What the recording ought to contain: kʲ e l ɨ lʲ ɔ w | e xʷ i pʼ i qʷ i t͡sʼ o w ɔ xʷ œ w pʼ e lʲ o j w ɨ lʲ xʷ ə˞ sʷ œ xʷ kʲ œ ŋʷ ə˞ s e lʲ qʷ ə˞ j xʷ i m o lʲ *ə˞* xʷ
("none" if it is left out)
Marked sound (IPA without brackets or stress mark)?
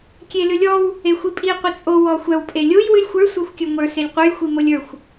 ə˞